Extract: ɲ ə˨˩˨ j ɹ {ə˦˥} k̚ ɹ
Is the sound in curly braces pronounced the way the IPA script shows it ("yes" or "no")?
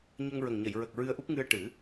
no